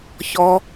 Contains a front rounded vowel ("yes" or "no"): no